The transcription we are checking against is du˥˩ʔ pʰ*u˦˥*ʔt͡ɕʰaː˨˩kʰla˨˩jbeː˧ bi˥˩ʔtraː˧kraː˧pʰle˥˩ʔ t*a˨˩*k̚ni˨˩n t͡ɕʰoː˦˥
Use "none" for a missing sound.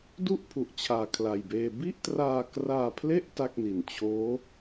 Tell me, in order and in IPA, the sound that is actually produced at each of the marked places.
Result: u˨˩, a˥˩

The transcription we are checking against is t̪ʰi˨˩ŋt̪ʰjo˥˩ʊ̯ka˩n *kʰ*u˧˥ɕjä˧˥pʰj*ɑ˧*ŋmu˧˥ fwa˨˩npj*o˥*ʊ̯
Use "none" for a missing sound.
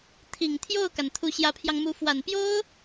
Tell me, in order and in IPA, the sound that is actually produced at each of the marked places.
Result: t̪ʰ, ɑ˧, o˥

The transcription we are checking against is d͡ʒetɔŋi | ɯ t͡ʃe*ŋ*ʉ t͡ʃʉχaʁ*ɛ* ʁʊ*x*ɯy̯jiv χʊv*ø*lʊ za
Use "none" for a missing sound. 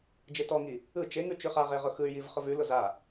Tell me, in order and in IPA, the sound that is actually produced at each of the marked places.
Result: ŋ, e, x, ʉ

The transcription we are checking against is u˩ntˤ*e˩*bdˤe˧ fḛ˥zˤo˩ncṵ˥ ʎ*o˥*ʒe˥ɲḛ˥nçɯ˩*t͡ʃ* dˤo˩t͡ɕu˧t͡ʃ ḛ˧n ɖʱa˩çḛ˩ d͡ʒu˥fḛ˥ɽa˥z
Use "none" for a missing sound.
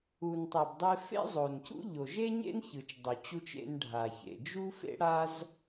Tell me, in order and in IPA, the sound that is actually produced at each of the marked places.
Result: e˩, o˩, t͡ʃ

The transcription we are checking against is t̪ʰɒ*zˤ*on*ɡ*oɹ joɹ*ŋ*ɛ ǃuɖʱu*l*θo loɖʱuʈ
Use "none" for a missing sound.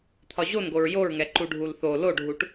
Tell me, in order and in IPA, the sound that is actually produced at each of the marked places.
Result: ʑ, ɡ, ŋ, l

